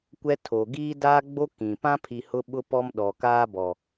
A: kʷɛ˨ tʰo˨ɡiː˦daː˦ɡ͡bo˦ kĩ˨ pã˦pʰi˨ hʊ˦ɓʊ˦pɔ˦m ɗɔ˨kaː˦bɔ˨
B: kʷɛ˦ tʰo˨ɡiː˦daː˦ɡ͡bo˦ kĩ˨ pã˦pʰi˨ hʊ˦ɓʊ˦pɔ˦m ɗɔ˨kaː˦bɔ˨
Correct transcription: B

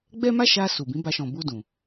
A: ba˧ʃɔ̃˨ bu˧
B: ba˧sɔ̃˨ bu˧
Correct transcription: A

